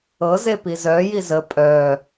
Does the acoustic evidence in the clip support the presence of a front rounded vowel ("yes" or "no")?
yes